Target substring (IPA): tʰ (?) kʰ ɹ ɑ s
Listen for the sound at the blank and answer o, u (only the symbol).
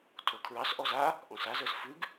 o